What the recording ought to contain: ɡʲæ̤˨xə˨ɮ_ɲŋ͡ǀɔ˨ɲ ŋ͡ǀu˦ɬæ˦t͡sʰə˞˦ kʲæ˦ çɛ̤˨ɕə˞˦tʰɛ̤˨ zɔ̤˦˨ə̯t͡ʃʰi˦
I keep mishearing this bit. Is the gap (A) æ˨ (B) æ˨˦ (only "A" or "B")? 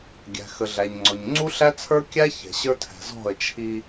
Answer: A